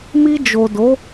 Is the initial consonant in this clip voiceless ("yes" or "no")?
no